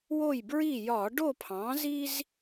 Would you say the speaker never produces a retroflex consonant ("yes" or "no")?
no